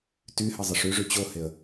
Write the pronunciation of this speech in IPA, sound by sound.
tyhɘzˤɘʂ yʐy t͡ɕoheə̯

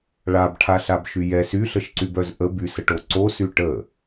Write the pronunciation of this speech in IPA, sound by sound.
ɭabʈʰaɬabʃy jɛs yɬəʃǀybœz ʔə bysəʈo ǀosy ʈə

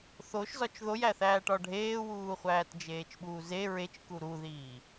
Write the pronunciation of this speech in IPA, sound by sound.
θoʃzɒt͡ʃ ðojæθæːʈɒ ɖʱeːwuːχʷæːt d͡ʒeːt͡ʃɓuːze ɹet͡ʃku ɾuðiː

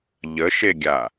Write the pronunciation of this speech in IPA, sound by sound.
ʎəʃeɡʲa

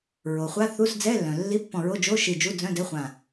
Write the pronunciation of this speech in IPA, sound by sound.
ɹo˩ χʷa˧˥˧θu˧˥˧s d͡zɛ˧˥˧lːœ̃˩ lːi˧˥˧pːɔ̃˧˩ɹo˧˥˧ d͡ʒo˧˥˧ʃi˧˩ d͡ʒu˧˥˧d͡zœ̃˧˥˧dɛ˧˥˧χʷã˧˩

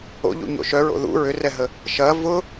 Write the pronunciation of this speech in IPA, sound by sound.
o̰ʎṵɲo̰ ʃœɹo̰ ðṵ ɹʏrɛɦə | ʃɐ vʊ

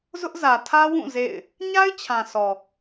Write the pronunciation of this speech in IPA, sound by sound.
zʊ˦ʔzä˨ tʰä˦wũ˦˨ zḛ˦˨ɪ̯ | ɲa˦ɪ̯t͡ɕʰã˨sʰɔ˨

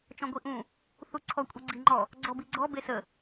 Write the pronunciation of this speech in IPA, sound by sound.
t͡ʃɔ̃ɡʷiʔũ | θuǀʰɔ kʷʼiɡ͡ǀiŋ͡ǃɔ | ɡ͡ǀɔbiɡ͡ǀɔ besə

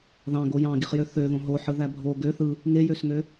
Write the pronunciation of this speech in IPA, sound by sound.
ðɑ̃ɡo jɑ̃ɡiχjø θøðõ ɦoħɯðæ bʱo ɡø θɯ | ŋejøsŋø

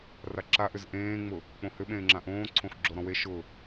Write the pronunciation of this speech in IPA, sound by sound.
raǁaʔʏz ʔẽːŋ͡mʊ | k͡põhʏɓẽːŋ͡ǁã ʔõːǀʰõx ɡ͡ǁoɾɔ̃we ʃʊ

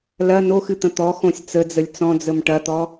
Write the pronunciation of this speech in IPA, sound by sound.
lɐ noxɨt̪ə̃ t̪ɔxõsʲ t͡səd͡zəlʲ t͡sɔ̃d͡zəm ʈɐt̪ɔ

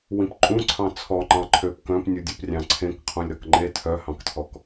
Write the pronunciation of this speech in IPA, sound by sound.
wĩpǃʼũǀʰɑ̃ t͡sʰɔŋ͡ǃɑ̃ ǃʰøp kœ̃pnʲudʲuprʲɑ̃ ǀʰẽk qʰũlʲɾɔkŋ͡ǃe tʰœhɑ̃ktʰɔk

